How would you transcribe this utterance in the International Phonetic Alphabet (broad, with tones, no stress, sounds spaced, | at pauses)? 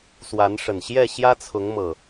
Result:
s w a˨˦ n ʂ ə˨˩ n ɕ j ɛ˥˨ ɕ j ä˦ t͡sʰ ʊ˨˦ ŋ m ɤ˨˩